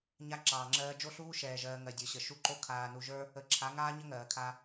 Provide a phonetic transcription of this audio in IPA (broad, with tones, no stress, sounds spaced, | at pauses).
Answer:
ɲ a˦ ǁ ɑː˨ ŋ͡ǁ ɜː˦ d͡ʒ o˦ ɬ uː˦ ʃ ɛː˨ ʒ ɜː˨ ŋ ɜ˨ dʲ ə˞˨ ɕ ə˨ ʃ u˦ ǃ o˦ kʰ aː˨ n u˨ ʒ ə˞˦ | ə˨ ǁʰ a˨˦ ŋ aː˦ ɲ ə˦ ŋ ɜː˨ kʰ a˦